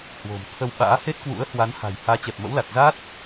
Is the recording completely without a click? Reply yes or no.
yes